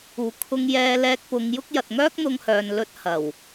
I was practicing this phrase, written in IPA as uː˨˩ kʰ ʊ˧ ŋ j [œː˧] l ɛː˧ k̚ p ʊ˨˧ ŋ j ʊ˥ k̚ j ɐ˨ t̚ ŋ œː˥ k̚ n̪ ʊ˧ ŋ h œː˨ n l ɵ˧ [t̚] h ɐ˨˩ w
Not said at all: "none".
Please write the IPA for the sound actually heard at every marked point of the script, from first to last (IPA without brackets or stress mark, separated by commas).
ɛː˧, t̚